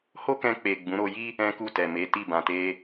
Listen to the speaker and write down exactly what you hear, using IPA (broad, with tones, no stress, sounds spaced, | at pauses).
h o˦ k ɛ̃˧ k͡p e˨ ɡ͡b ũ˨˦ ɾ o˧ j i˦ | ɛ̃˦ k u˦˨ t ɛ˨ m e˨˦ t i˦˨ b ã˨ t e˧